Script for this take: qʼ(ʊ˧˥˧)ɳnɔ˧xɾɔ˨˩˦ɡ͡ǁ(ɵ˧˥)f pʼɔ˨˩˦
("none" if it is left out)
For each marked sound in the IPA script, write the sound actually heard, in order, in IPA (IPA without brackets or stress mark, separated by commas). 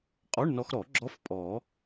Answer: ɔ˧˥˧, ɔ˧˥